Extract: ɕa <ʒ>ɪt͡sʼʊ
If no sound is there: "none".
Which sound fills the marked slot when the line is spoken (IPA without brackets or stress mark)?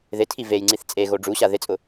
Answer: ð